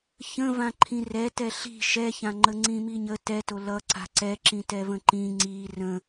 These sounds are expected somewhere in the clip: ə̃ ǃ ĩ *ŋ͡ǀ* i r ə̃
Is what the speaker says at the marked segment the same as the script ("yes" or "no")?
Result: yes